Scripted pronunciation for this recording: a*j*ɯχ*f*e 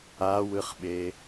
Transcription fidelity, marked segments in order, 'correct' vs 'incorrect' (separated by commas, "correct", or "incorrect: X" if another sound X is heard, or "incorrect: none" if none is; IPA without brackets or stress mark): incorrect: w, incorrect: ɓ